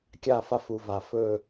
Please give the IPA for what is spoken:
kʲ a˦˨ f a˦ f u˨ v a˨ f ɵ˦˨

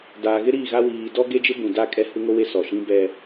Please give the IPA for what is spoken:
d aː˨ ɣ ɪ˦ ɾ iː˦˨ ɣ a˦ w iː˨ d ɔ˦ ɡ e˦ d͡ʒ ɪ˦ b ũ˨ d a˦˨ kʼ ɛ˦ h u˦ ŋ o˦ w e˦ s ɔ˨ ʃ ĩ˦ b ɛ˦

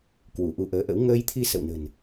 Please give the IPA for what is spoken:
k w u˧˩ ʔ u˧ ʔ əː˨˦ ʔ ə̰˧˥ w ŋ əː˧ j t̪ʰ i˧ s ə̰˧˨ w n ə̤˨˩ n

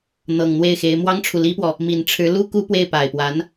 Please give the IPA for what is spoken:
n̪ ɤ˨˩ ŋ n̪ w e˥˩ ɪ̯ x e˧˥ ɪ̯ m w ɑ˥ ŋ ʈ͡ʂʰ u˨ l i˥ p w ɔ˨ | m i˨˩ n ʈ͡ʂʰ ɻ̩˧˥ l u˥ k u˥ p w e˥˩ ɪ̯ p a˨˩ ɪ̯ p w a˧˥ n

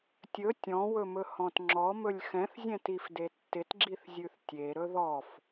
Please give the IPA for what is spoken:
tʲ ɵ tʲ ɔ̃ w ɵ m ɵ h ɔ̃ t ŋ͡ǁ ɔ m ɵ lʲ x ɛ̃ θ zʲ ɛ̃ t i f d e tː ɪ t ɡ͡ǁ i θ zʲ ʉ θ tʲ e ɾ ɵ ð ɔ f

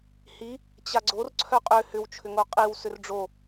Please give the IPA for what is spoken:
h i | t͡ɕ a ɡ͡ǀ o r ǀʰ œ qʼ ʏ h ʏ w t͡ʃʰ ʏ ŋ o qʼ i w s ʏ r ɖ͡ʐ o

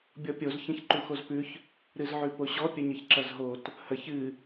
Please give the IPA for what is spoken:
bʲ ɔ pʲ o z ç ɐ̃ ç ǃ u x o z p ʉ ç | ɾ ɨ z ʕ ʉ p o ɕ ɔ pʲ ə ɲ ə ç ǁ ɐ z ɦ o t | h ə ç ɨ

